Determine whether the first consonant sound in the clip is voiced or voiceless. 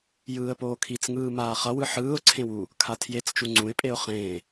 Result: voiced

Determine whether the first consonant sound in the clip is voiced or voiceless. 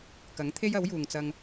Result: voiceless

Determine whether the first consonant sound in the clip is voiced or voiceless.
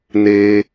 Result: voiced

